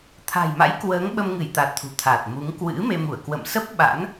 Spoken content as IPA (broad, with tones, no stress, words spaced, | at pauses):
t̪ʰa̤˨˩jma̰˧˥jkwəː˨˦ŋ ɓə˧mŋɨ˧˩jt̪a˨˩t̚ t̪ʰṳ˨˩t̪ʰaː˨˩t̚mu˨˦ŋ kwɨ̰˧˥me˧mu˧˩ə̯ kwə̰˧˨msə˦˥p̚ ɓa̰˧˥n